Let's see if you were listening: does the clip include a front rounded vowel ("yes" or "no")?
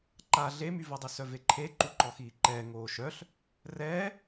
yes